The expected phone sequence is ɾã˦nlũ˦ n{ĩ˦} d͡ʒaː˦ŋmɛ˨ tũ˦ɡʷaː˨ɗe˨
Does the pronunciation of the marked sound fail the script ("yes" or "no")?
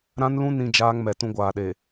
no